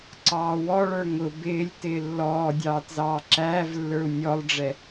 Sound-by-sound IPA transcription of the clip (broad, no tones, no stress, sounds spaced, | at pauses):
ǀ ɑː w ɔ ɭ ə˞ ŋ ʊ b ɪː lʲ t ɪː lː ɔː dʲ ɑː t z ɑː ǁ æː v lː ə˞ u̯ nʲ ɔ lˠ ɖ͡ʐ ɛ